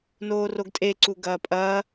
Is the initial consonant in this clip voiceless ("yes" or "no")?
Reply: no